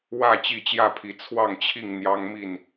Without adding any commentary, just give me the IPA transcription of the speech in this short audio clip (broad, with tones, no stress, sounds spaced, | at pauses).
w ä˥˨ t͡ɕ i˥˨ t͡ɕ j ä˥˨ pʰ i˨˦ t͡sʰ w ɑ˥˨ ŋ t͡ɕʰ i˥˨ ŋ n̪ j ɑ˦ ŋ m i˥˨ n